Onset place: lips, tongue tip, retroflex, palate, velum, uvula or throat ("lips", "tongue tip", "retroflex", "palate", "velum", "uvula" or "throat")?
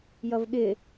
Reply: palate